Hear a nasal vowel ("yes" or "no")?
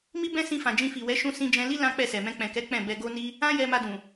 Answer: yes